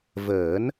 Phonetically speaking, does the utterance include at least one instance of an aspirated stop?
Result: no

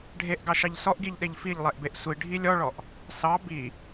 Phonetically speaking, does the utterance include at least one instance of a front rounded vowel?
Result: no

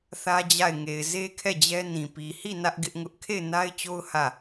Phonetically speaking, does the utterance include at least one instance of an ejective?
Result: no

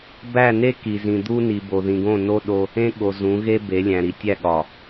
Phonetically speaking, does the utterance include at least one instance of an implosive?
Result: yes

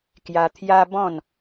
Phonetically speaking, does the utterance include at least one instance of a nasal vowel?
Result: yes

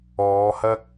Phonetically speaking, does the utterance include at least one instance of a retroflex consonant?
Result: no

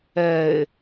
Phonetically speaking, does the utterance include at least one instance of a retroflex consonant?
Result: no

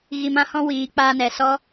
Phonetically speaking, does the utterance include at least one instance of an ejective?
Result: no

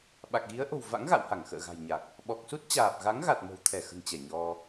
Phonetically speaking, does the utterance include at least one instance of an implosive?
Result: yes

